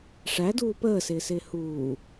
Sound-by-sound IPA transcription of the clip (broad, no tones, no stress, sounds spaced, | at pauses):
ʂ æ d uː p əː s ɪː s ɪː h uː